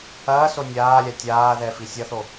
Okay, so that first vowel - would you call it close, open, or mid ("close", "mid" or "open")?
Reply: open